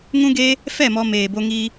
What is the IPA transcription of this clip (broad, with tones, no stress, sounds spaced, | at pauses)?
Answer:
ŋ ũ˦ ɡ e˦ | f ɛ˦˨ m ɔ˧ m eː˨ b o˧ ŋ i˧